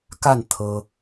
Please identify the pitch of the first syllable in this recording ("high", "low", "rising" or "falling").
falling